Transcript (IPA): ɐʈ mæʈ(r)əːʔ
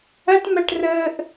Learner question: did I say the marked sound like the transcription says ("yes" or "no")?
yes